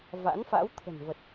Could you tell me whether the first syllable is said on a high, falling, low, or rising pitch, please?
rising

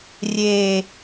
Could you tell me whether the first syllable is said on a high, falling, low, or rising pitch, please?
low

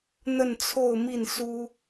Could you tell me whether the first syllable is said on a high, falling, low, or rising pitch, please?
falling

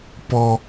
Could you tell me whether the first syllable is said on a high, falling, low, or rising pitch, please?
high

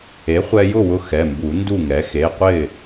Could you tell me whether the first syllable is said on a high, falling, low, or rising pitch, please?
rising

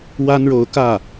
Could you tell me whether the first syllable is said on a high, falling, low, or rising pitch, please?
high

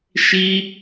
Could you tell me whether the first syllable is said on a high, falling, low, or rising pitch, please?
high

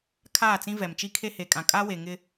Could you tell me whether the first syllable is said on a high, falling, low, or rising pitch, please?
falling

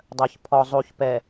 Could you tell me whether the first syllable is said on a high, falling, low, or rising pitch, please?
low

